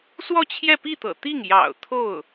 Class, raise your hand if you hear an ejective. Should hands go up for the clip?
no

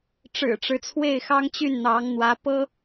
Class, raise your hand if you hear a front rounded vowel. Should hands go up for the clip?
yes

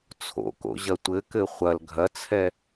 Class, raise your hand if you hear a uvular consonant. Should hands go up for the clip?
yes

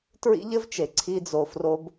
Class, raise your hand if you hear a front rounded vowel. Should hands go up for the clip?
no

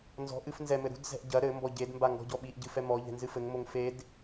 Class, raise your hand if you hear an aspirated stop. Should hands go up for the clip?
no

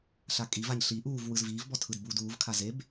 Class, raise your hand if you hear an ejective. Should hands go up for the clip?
yes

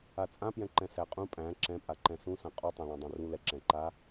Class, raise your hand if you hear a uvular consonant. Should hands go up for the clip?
yes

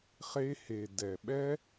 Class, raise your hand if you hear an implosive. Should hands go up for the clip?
yes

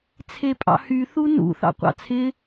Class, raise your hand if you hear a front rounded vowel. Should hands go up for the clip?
yes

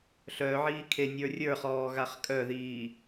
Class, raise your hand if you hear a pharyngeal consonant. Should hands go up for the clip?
yes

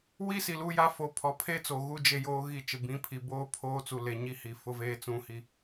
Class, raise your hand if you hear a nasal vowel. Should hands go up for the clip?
yes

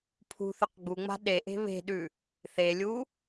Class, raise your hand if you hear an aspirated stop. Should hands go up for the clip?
yes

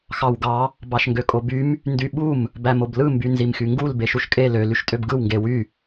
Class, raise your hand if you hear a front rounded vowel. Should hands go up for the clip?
yes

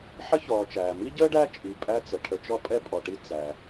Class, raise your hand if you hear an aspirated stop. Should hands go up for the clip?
yes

